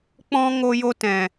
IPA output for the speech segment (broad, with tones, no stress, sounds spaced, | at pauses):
k͡p ɔ̃˧ ŋ o˧ j o˧ t ɛ̃˨